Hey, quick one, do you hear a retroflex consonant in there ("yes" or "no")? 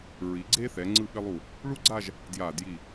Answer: yes